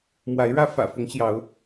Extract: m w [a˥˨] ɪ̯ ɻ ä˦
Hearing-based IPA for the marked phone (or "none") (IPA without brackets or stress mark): a˨˦